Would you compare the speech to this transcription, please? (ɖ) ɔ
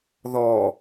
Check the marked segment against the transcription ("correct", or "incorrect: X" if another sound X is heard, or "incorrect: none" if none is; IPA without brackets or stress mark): incorrect: ð